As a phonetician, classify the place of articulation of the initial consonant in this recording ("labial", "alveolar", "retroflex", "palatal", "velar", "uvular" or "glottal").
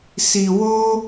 alveolar